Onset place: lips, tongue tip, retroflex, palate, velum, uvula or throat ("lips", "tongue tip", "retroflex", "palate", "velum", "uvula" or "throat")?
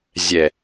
tongue tip